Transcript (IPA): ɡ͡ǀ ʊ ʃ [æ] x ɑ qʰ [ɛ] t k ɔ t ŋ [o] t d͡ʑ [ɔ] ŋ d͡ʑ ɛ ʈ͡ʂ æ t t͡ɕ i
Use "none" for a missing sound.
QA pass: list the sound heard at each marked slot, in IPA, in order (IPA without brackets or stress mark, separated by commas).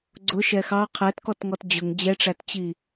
ɛ, ɛ, ɔ, ʊ